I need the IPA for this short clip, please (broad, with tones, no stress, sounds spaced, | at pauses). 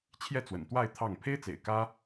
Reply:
t͡ɕʰ j ɛ˥˩ t͡s w ə̰˨˩ n t̪ w a˥˧ ɪ̯ t̪ʰ ɑ˥˩ ŋ pʰ e˥ ɪ̯ t͡s ḛ˨˩ ɪ̯ k ä˥